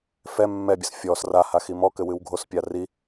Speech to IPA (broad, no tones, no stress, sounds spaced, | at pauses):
f ɛ mː ɛ bʲ ɘ s fʲ ɔ s r a h a x i m ɔ k ɘ w ɨ w ɡʱ o s pʲ a r i